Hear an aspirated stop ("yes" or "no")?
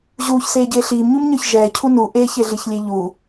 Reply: yes